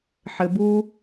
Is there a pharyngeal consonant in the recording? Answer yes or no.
yes